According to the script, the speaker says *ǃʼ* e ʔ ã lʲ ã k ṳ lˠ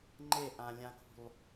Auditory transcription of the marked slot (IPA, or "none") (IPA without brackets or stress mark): ŋ͡ǃ